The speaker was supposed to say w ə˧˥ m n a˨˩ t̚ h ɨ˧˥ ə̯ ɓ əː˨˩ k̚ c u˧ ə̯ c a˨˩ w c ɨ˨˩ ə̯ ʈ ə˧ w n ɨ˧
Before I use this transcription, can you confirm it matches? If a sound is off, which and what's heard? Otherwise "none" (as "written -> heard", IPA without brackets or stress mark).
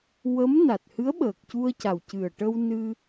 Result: none